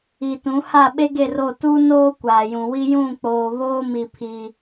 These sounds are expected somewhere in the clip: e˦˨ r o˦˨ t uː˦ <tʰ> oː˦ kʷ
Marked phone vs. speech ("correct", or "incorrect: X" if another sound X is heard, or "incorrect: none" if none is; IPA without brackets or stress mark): incorrect: n